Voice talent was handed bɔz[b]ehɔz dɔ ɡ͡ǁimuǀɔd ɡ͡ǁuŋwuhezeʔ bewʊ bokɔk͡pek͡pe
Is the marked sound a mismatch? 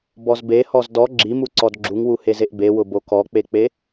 no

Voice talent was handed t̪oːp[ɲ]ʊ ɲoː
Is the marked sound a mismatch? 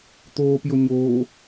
yes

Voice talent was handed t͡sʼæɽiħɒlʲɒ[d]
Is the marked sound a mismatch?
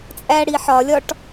yes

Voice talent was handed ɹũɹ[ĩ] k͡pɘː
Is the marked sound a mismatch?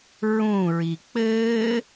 yes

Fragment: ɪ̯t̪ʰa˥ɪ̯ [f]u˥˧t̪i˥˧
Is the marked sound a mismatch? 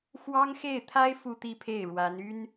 no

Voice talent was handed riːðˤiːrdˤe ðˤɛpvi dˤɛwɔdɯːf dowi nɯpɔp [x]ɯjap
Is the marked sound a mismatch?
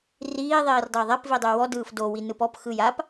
no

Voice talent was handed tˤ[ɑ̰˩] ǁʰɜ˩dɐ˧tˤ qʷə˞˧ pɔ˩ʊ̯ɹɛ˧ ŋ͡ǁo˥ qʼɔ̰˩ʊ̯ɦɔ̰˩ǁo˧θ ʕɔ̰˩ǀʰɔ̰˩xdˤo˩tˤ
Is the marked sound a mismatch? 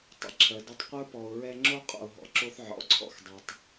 yes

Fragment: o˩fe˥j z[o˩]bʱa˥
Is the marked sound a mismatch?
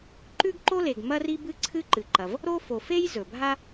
yes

